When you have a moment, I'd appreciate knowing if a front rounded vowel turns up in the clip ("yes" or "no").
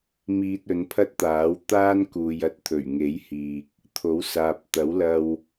no